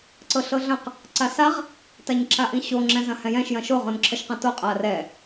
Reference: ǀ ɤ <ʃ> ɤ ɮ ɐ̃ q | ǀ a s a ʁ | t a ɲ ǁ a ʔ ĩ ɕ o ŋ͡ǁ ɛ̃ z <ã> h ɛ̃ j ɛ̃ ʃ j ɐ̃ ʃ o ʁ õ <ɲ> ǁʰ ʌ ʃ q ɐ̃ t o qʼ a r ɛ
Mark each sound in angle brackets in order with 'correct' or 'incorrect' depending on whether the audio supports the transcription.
incorrect, incorrect, incorrect

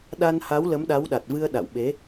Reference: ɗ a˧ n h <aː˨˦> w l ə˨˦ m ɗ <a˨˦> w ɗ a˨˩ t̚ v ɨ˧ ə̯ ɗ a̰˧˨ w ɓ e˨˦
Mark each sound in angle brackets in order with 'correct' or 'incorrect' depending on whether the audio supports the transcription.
incorrect, correct

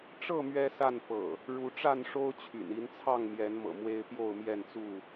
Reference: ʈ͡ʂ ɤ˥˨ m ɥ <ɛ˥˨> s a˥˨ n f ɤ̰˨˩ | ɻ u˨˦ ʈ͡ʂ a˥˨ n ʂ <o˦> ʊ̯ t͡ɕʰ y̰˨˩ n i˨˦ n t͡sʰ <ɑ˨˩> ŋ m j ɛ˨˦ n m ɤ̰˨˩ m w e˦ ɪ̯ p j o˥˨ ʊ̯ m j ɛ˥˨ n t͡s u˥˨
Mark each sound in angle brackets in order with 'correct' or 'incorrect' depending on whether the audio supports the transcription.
incorrect, correct, incorrect

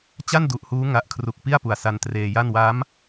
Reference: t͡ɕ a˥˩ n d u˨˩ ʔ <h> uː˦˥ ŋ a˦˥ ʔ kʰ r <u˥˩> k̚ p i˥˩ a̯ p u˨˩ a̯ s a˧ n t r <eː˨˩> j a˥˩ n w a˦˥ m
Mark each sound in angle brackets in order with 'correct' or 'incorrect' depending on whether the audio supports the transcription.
correct, incorrect, incorrect

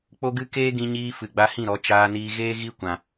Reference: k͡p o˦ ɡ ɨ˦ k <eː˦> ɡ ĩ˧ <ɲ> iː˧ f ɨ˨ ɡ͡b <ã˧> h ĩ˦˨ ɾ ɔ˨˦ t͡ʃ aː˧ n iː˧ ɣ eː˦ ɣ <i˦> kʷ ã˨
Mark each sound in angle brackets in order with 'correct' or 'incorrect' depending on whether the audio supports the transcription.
correct, correct, incorrect, correct

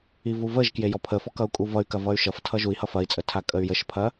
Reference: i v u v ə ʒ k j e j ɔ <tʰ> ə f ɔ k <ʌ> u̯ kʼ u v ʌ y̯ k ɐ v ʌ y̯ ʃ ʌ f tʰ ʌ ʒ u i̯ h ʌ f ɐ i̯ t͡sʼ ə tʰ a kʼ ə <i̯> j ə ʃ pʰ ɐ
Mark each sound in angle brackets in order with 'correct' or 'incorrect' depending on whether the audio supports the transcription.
incorrect, correct, incorrect

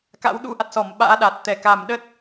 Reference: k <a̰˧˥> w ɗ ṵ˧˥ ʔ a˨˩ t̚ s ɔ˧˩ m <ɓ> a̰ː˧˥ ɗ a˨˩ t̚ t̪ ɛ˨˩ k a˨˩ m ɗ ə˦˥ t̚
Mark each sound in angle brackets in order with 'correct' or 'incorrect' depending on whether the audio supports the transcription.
correct, correct

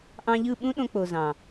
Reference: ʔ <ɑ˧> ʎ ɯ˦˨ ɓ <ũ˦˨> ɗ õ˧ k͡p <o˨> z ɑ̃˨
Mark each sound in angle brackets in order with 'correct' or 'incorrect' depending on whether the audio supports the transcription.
incorrect, incorrect, correct

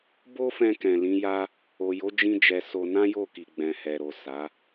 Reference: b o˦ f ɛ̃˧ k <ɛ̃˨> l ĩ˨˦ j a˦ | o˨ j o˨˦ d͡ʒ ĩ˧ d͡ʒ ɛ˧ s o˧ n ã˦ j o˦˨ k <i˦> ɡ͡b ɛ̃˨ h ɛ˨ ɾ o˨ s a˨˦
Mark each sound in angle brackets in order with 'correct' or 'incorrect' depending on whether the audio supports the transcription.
correct, incorrect

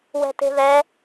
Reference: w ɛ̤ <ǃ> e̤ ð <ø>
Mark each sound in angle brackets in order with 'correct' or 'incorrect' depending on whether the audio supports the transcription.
incorrect, incorrect

